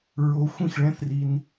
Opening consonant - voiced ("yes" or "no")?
yes